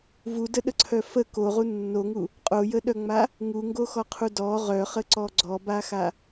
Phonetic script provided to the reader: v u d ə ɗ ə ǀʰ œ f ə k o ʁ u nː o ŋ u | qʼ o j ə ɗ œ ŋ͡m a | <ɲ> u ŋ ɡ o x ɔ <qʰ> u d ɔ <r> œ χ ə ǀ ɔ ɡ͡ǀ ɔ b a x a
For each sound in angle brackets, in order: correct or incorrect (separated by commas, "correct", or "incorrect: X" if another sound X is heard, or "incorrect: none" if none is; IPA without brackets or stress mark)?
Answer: incorrect: ŋ, correct, incorrect: ʁ